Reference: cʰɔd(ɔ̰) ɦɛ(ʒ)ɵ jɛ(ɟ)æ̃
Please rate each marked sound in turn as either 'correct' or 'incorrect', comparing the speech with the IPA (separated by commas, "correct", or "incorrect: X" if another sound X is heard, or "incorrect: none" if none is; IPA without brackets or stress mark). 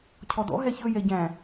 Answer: correct, incorrect: ç, correct